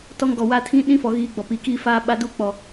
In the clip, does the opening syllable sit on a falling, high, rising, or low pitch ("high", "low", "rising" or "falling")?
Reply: high